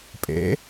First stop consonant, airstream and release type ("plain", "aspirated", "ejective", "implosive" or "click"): ejective